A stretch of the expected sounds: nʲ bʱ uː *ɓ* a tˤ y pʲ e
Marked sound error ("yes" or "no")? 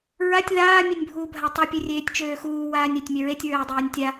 yes